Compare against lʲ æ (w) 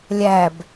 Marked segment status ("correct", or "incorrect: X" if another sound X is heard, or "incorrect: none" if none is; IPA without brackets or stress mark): incorrect: b